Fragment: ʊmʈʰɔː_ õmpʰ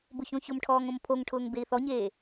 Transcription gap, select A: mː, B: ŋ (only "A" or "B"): B